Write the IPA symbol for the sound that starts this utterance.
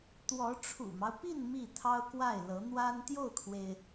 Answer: t̪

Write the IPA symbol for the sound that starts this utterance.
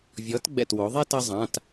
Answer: vʲ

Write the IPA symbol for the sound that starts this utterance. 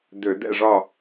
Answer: d̪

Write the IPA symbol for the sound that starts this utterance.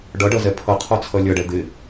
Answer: ɖ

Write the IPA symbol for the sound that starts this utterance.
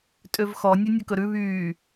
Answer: tʼ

